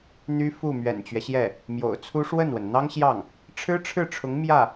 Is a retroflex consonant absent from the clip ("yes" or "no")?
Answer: no